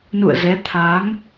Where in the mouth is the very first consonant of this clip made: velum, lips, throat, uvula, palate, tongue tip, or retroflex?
tongue tip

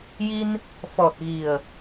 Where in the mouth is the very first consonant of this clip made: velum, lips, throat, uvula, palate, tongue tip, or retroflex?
palate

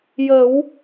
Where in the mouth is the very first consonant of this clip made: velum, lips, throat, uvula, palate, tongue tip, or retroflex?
palate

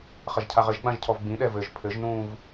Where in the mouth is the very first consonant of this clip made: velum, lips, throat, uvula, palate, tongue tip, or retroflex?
uvula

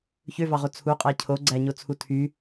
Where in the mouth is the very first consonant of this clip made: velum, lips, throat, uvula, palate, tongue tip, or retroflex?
palate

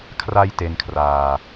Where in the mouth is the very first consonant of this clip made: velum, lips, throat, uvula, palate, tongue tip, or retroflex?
velum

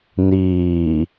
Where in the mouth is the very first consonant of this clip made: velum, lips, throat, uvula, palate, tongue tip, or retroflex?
tongue tip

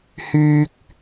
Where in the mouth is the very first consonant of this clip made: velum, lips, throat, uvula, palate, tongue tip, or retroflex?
throat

